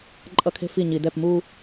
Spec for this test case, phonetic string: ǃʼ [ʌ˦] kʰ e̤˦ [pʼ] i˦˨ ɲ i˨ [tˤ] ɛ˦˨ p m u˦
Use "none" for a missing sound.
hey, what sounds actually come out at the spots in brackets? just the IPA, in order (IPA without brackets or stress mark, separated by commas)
ʌ˦, f, d